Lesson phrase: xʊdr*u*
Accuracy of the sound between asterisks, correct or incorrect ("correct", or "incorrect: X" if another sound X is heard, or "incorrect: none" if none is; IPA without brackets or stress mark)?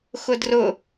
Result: incorrect: ʊ